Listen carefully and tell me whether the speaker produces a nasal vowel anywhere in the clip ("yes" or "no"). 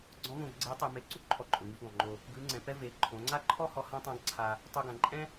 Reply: yes